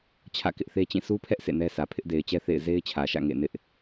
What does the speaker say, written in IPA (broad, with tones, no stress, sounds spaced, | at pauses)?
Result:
t͡ɕʰ ä̰˦˨ k ɪ˦ ʔ θ e˦ t͡ɕ ĩ˦˨ sʰ u˦ pʰ ɛ˦ ʔ s ḛ˦˨ n ɛ˦ sʰ ä˨ pʰ ɪ˦ ʔ d e˨ ɪ̯ t͡ɕ ɛ˦ θ ḛ˦˨ ɪ̯ z e˦ ɪ̯ t͡ɕʰ ä˨ ʃ ä̰˦˨ ŋ ḛ˦˨ n ɪ˦ ʔ